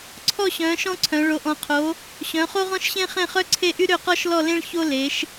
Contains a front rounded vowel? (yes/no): yes